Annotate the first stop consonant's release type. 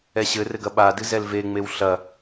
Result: plain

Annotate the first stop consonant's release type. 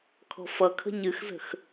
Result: aspirated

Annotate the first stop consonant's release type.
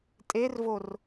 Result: ejective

